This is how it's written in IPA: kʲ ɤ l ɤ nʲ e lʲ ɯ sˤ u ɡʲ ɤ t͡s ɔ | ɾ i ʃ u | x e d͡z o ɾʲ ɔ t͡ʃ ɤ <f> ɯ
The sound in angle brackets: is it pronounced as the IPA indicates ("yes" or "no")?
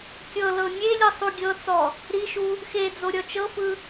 yes